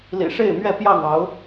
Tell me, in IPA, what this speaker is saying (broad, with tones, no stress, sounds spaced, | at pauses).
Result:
l ḭ˨˩ ʂ e˥˨ ɪ̯ m ɥ ɛ˥˨ p j ɑ˥˨ ŋ ɑ˨˦ ʊ̯